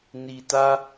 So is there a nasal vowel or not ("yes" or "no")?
no